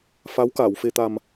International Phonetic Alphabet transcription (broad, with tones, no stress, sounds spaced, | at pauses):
f a˧˥ w k aː˨˩˨ w f e˨˩ t̪ a˨˩ m